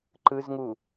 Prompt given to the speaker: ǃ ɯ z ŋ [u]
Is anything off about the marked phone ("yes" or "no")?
no